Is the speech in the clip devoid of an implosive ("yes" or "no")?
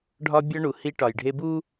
yes